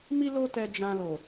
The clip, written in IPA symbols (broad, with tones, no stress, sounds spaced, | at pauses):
m i˦ l o˦ t ɛ˧ d͡ʒ ã˧ l o˨